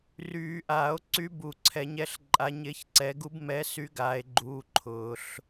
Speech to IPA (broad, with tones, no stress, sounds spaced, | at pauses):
r yː˨˩˦ ʔ aː˨˩˦ o̯ ǀ y˧˥ b u˨˩˦ ǀʰ ɛ˨˩˦ ɲ ɛ˧˥ ɬ ǃʼ a˧˥ ɲ ɪː˧˥ ç ǀ ɛ˧˥ ɡ u˧˥ b m ɛ˧˥ s y˧˥ ɡ aː˧˥ e̯ ɡ͡ǃ uː˧˥ ǃʰ ʊː˨˩˦ ɬ